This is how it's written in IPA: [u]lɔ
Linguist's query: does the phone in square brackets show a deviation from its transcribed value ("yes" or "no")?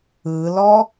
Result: yes